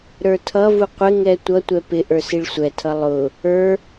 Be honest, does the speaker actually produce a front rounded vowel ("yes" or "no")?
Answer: no